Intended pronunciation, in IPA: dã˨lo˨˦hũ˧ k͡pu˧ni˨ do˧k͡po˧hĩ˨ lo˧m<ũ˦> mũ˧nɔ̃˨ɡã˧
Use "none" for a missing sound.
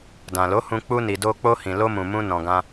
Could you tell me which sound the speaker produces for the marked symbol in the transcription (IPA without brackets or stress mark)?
ũ˨